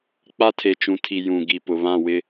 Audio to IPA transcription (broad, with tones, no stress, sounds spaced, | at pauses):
k͡p a˦ tʰ e˨ t͡ʃ ũ˨ tʰ i˨ j ũ˨ ɡ i˨ p ʊ˨ β ã˦˨ w ɪ˦